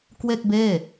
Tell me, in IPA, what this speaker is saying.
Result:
k w e˥˩ k̚ b eː˥˩

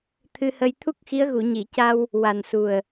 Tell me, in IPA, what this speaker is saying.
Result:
t̪ʰ ɨ˧ h ə˧ j t̪ʰ u˦˥ k̚ x i˧˥ ə̯ ɣ u˨˩˨ ɲ i˨˩˨ c a˧ w | w a˨˩ n s u˨˩ ə̯

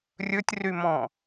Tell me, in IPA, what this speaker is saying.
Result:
rʲ ɵ tʲ r y m ɔ̃

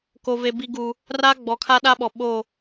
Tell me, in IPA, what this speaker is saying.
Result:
k o˨ v e˨ b i˨ ɡ u˨ | r a˦ ɡ͡b ɔ˨ kʰ a˦ ɗ a˦ ɓ ɔ˨ ɓ o˦˨

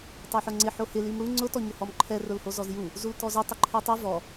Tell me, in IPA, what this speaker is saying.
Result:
tˤ e ħ o ŋ͡ǀ ɪ ħ o h ɪ l i m ɽ u ŋ͡ǀ ʊ t ɔ ɲ ʊ h ɔ m ǃʰ ɛ r ʊ l h o z ɔ z j u | z u l t ɔ z ʊ tˤ ʊ ǃʰ ɛ tˤ e v ɔ

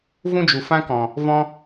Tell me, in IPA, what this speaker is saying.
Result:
v ũ˦ d͡ʒ u˨ f ã˦ k ɔ̃˨ | v ɔ̃˦

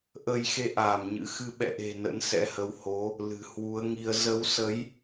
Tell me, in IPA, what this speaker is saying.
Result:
ʔ ə˧ j x e˧ ʔ aː˧˩ m ɲ ɨ̰˧˥ x ɨ˨˦ ɓ ɛ̰˧˨ ʔ e̤˨˩ n ə̰˧˥ n s ɛ̰˧˥ h ə˨˦ w h o˨˦ | l ɨ̤˨˩ h w u˨˦ ə̯ ŋ i˧ ə̯ z ə˨˦ w s ə˨˦ j

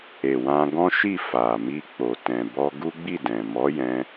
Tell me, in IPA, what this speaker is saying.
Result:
e˨ w ã˧ ɡ ɔ̃˦ ʃ i˦˨ f a˨ m i˧ k͡p o˨ t ɛ̃˨ b ɔ˧ ɡ u˦ ɡ͡b i˦˨ d ɛ̃˨ m ɔ˨˦ j ɛ̃˧

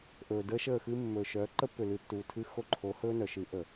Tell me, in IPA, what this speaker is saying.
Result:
ʔ ɵː˨ d əː˦ ʃ əː˦˨ x ɨ˦ mː ɵ˨ ʃ œ˨˦ ǃ ə˦ pː ʏ˨ l ɨ˨ tː uː˨ tʰ ɨ˦ x o˦ ǃʰ o˨˦ h ɵː˦ n œ˨ ʃ ɨ˨˦ ʔ ə˨

